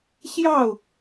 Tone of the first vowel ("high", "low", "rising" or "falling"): falling